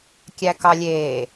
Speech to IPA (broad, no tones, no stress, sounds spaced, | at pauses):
kʲ æ k ɑ lʲ eː